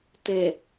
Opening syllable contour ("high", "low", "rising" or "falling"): low